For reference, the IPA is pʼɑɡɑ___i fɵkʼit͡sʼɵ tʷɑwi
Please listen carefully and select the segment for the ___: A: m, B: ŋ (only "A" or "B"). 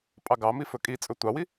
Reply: A